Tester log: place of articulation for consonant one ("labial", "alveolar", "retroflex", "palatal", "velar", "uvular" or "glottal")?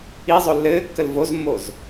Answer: alveolar